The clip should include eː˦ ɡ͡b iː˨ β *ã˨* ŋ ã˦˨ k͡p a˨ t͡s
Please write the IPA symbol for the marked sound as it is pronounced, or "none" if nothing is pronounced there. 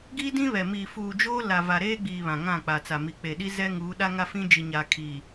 ã˨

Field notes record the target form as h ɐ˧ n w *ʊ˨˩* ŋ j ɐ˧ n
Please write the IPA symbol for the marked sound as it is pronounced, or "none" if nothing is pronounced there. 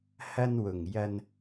ʊ˨˩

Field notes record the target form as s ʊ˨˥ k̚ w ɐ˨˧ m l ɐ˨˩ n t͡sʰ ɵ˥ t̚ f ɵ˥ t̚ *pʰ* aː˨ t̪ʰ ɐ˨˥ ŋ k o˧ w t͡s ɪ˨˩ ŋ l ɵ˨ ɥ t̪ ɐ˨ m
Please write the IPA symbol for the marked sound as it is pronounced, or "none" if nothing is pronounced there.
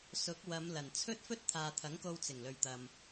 t̪ʰ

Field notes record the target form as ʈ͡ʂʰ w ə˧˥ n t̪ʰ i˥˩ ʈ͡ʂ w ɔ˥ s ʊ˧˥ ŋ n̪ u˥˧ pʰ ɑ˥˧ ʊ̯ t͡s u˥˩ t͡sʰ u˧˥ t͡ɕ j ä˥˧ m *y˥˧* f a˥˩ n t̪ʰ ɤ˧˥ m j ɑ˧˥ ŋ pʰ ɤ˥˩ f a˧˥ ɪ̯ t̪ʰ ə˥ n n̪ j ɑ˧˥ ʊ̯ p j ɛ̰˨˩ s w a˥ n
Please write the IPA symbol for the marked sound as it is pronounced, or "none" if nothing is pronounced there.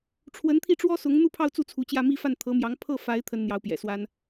i˥˧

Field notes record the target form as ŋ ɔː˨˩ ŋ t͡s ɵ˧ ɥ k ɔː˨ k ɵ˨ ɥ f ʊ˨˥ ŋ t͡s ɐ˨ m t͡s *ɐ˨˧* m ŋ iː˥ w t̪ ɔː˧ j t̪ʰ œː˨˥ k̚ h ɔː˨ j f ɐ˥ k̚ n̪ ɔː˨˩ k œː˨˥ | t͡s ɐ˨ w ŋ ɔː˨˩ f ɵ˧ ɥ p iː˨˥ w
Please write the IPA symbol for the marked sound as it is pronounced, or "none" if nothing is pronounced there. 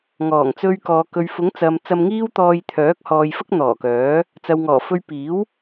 ɐ˧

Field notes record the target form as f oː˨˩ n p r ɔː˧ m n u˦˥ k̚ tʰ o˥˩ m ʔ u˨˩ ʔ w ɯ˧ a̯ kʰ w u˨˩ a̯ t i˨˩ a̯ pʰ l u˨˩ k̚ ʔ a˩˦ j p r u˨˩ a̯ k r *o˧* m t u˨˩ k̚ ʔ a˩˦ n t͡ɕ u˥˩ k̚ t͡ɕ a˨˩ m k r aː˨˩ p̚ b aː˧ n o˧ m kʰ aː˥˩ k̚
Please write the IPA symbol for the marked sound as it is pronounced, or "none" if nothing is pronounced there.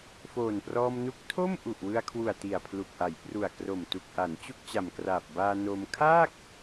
o˨˩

